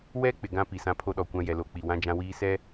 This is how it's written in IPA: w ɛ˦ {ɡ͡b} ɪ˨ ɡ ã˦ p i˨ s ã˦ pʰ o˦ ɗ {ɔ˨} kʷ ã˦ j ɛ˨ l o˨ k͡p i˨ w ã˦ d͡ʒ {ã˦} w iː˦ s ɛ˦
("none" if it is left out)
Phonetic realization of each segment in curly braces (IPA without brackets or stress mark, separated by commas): k͡p, ɔ˨, ã˦